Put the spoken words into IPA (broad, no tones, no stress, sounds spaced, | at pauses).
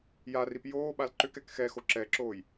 j a r i p j oː ɓ a l ǃ ʏ k ɛ k x ɛ x o ǁ ɛ ǁ oː j